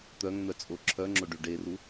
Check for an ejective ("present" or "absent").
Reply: present